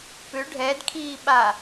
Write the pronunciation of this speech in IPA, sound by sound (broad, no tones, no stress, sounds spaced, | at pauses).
p ʏ ɖʱ ɛ d kʰ iː ɓ a